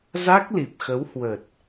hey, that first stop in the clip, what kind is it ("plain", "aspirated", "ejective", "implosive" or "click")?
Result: plain